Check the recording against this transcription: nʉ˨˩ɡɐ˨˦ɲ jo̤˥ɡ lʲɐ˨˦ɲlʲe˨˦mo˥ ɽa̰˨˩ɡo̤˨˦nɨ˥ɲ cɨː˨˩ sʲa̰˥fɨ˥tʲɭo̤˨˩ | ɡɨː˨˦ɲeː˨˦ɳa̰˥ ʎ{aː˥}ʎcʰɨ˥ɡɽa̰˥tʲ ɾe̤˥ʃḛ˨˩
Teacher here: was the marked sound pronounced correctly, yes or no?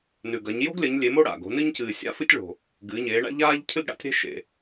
yes